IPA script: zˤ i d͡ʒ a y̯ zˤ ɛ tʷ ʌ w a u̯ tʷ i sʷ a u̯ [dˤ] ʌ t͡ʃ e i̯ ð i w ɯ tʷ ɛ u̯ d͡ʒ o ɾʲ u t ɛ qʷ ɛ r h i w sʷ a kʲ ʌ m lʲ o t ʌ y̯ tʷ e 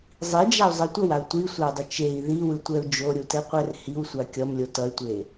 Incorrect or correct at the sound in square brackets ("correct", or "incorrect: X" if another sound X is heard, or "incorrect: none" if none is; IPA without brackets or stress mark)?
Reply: correct